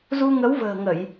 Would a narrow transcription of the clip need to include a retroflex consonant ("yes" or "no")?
no